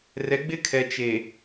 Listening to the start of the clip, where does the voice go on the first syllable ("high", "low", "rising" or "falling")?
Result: rising